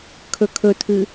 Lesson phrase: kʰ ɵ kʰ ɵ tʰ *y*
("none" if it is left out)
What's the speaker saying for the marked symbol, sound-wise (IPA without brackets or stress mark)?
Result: ɨ